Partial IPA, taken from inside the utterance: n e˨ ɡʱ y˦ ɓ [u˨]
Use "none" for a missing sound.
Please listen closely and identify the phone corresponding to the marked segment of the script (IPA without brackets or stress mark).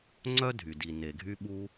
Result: u˦